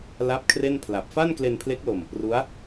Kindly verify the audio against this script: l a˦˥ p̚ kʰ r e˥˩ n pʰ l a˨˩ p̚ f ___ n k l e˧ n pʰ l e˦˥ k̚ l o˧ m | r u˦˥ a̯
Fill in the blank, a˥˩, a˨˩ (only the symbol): a˥˩